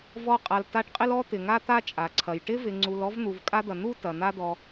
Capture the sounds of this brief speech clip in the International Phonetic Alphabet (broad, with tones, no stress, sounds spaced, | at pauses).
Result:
v ɔ˦ qʼ a˨ l t a˦ ʈ qʼ ɪ˥ l ɔ˥ t̪ ɪ˩ ŋ a˦ t̪ a˦ t͡ʃʼ a˩ ǀʰ ɐ˩ j ʈ ɪ˥ v ɪ˨ ŋ͡ǀ u˨ l ɔ˥ v n̪ u˨ v kʼ a˥ d̪ ɐ˨ n̪ u˥ t ɐ˩ n̪ a˦ d̪ ɔ˨